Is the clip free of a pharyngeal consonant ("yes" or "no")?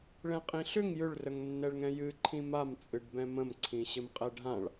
yes